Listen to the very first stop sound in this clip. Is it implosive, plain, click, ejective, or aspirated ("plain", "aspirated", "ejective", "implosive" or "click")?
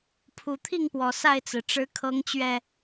aspirated